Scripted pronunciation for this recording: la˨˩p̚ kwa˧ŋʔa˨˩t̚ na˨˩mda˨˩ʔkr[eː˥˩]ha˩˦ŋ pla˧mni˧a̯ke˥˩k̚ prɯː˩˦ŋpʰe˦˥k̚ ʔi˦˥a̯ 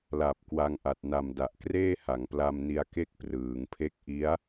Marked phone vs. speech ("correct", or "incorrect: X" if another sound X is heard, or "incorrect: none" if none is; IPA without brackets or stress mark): correct